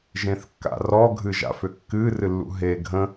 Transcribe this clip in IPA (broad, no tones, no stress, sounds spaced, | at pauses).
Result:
ʒ ẽ θ kː a̰ r ɔ ɡʱ ɨ ʒ a̰ f ʏ kː ɨ r ɨ lː ṵ ɦ e ɡʱ ə̃